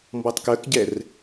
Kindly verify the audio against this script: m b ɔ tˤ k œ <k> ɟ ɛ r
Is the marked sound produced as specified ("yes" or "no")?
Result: yes